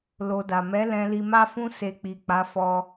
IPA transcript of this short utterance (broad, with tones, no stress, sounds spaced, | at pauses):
l o˧ d a˨ m ɛ˨˦ l ɛ̃˧ l i˧ m a˦ f ũ˦ s e˧ k͡p i˨ k͡p a˨˦ f ɔ˧